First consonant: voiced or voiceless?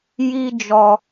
voiced